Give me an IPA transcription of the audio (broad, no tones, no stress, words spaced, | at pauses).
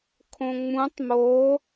kʰõŋ͡mũtˤ mo